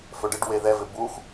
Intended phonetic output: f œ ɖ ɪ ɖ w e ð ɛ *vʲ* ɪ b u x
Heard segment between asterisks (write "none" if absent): v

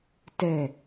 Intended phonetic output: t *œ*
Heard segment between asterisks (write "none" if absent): ɛ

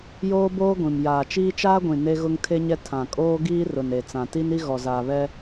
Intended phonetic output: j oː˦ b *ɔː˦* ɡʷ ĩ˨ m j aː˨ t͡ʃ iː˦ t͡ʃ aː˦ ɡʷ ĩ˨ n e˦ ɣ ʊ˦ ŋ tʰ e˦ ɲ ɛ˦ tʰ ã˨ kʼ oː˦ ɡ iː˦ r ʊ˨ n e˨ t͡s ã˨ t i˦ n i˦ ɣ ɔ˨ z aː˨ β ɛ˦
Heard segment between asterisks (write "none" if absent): oː˦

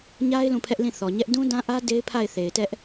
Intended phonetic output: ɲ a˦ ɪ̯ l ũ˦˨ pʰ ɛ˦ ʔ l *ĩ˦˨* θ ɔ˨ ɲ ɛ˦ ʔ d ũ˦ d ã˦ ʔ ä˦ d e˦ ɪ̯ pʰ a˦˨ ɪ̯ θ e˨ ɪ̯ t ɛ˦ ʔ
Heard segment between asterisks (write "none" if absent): ĩ˦˨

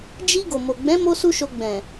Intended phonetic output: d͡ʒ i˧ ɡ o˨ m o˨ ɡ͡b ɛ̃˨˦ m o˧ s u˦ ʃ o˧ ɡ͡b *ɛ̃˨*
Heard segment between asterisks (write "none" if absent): ɛ̃˨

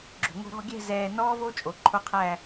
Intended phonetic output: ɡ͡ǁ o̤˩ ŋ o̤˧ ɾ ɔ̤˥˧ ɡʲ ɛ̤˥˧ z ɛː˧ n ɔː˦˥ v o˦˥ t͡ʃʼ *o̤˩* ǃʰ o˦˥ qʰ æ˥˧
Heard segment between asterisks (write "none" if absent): o˩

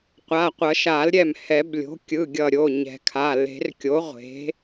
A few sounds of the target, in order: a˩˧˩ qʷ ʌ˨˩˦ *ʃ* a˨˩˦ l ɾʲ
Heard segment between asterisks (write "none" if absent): ʃ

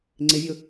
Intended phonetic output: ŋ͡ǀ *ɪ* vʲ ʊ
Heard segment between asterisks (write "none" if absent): ɪ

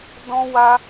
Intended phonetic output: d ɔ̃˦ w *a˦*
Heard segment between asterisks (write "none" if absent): a˦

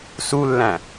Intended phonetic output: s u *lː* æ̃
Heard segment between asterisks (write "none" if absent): lː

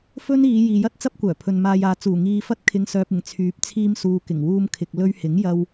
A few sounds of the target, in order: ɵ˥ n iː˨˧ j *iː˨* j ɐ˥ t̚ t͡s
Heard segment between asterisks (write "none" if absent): iː˨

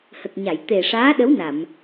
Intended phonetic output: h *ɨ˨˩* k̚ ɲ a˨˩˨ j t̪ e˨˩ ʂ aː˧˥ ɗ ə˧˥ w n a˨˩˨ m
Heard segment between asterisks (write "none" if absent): ə˨˩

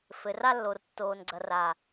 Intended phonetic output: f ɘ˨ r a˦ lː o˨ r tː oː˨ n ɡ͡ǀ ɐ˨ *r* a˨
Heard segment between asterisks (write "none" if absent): r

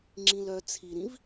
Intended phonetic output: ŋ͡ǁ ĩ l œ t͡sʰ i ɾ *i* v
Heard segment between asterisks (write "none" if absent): ĩ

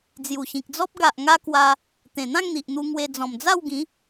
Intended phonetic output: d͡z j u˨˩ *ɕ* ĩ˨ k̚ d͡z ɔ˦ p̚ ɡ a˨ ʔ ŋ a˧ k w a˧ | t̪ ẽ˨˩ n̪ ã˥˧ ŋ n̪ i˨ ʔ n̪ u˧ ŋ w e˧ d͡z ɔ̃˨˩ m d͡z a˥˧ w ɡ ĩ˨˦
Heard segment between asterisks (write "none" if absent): ɕ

